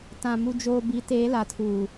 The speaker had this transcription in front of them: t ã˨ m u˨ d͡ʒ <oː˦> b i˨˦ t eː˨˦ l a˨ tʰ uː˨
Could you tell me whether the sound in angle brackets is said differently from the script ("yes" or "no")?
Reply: yes